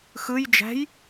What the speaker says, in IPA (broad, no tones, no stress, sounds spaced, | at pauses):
x ɯ j d͡ʒ æ̤ j